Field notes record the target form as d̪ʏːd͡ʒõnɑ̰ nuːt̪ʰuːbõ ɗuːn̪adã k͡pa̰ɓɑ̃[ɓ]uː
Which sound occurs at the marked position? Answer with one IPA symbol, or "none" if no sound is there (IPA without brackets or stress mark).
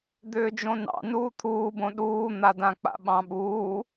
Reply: ɓ